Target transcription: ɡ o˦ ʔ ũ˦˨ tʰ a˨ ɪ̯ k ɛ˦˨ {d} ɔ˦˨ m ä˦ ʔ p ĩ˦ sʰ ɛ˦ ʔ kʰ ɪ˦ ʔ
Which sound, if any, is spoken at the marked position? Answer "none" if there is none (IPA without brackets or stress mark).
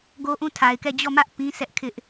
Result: d͡ʑ